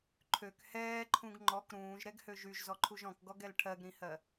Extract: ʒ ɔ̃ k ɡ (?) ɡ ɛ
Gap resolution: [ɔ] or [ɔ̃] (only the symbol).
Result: ɔ